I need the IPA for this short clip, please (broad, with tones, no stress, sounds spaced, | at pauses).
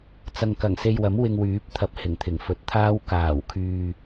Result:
t͡s ɐ˨ ŋ k ɐ˨˩ ŋ s e˧ j w ɐ˨˥ m w ɪ˧ ŋ w yː˨˥ p̚ t̪ʰ ɐ˨˥ p̚ h ɪ˨˩ ŋ t̪ʰ ɪ˨˩ ŋ f ɵ˨˥ t̚ t̪ʰ aː˥ w k aː˨˩ w kʰ yː˧